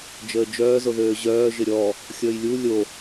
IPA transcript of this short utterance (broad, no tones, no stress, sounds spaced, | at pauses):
d͡ʒ əː d͡ʒ œː z o ð øː ʑ œː ʒ ɪ ɾʲ ɔ | xʲ əː j lʲ u lʲ o